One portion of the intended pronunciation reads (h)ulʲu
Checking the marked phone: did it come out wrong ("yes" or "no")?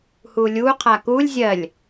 no